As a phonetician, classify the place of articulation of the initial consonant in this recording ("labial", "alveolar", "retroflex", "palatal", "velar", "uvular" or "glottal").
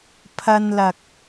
labial